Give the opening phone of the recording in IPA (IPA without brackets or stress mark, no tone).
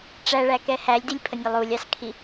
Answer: ʈ͡ʂ